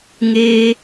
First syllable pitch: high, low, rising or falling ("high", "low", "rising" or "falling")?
high